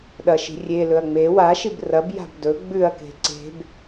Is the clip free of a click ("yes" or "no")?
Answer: no